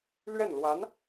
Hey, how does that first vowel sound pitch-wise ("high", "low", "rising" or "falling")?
falling